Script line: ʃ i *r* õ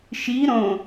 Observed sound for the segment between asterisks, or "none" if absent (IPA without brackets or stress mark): ɾ